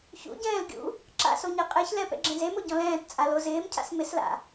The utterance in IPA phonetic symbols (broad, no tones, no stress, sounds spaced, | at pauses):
ç ṵ ɟ ɛ̃ː l ɡʲ ṵ | ǁ a̰ s o ɲ e qʼ e ç l ɛ p ɛ̰ ɡ͡ǁ ẽ z e m o ɟ ɔ̃ l ɛ̃ː t t͡sʼ a l o z ɪː m cʰ a̰ s m ɪ s l a̰